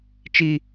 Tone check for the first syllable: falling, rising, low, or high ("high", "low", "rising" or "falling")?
high